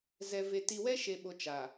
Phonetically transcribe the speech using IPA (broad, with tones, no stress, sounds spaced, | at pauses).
z ɛ˨ v e˨ t i˨ w ɛ˦ ʃ e˨ ɓ o˨ t͡ʃ a˨